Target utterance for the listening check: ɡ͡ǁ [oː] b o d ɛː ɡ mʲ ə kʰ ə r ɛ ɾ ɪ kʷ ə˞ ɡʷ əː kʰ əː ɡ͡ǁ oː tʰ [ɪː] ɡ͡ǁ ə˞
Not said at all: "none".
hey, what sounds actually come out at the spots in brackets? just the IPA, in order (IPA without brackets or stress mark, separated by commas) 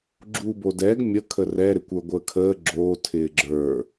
uː, ɪː